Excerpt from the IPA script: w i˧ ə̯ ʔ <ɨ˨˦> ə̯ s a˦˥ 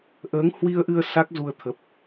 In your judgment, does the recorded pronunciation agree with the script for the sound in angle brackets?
no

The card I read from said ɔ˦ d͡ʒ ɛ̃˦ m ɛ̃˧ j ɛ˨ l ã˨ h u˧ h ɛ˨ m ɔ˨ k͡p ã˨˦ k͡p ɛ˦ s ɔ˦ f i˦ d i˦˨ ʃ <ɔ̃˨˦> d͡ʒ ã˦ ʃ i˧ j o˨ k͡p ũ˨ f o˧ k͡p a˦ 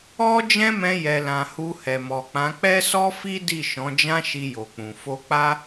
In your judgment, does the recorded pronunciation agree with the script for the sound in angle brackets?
yes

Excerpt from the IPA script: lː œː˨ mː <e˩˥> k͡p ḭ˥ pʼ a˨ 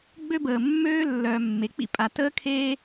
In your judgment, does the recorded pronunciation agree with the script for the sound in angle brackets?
yes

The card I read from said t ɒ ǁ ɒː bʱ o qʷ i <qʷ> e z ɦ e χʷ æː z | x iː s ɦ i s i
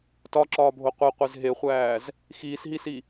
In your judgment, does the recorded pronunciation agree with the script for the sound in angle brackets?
yes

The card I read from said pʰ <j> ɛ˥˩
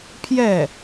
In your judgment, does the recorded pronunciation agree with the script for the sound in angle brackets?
yes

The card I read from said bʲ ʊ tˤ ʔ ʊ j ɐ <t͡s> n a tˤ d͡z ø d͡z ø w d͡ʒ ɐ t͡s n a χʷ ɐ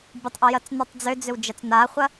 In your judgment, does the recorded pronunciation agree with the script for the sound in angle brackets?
yes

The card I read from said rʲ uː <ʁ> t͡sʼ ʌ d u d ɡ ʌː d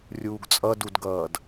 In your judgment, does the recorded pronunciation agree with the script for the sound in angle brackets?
no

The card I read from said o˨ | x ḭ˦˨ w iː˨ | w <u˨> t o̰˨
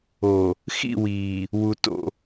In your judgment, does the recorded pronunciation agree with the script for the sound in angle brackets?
yes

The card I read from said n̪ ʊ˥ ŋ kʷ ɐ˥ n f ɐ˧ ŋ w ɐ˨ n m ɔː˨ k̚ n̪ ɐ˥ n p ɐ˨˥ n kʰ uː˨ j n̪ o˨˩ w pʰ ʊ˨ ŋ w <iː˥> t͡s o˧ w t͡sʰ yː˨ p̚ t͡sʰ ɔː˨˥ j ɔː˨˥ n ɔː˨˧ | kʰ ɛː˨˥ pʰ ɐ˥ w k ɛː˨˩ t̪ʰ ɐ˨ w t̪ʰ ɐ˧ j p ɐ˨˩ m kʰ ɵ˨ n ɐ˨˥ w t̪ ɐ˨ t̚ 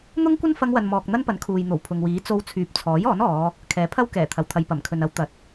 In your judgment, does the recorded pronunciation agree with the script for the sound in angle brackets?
no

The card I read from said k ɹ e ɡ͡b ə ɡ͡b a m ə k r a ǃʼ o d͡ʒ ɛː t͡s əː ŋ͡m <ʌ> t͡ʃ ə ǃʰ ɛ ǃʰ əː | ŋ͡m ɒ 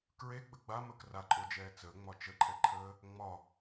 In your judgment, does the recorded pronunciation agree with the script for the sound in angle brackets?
no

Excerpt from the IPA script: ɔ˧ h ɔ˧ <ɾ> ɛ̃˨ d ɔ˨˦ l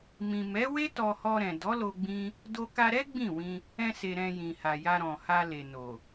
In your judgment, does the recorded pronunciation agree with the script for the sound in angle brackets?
yes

